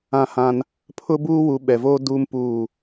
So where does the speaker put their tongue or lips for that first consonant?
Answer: throat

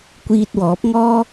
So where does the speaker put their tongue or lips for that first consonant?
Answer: velum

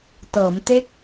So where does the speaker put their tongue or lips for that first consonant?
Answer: tongue tip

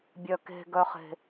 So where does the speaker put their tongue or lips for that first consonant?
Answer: lips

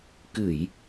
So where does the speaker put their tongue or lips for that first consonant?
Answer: velum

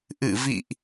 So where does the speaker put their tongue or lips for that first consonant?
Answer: throat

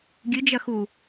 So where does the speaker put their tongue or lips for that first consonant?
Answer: velum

